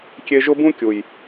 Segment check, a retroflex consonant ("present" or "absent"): absent